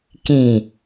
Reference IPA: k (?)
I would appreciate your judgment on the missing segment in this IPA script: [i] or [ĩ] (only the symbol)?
ĩ